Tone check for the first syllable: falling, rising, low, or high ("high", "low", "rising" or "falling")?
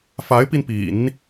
rising